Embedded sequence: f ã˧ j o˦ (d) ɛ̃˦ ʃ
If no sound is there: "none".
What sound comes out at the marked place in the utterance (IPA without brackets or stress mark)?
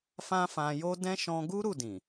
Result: d